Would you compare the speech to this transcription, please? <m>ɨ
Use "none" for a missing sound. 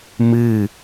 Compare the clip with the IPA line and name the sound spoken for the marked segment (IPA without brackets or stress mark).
m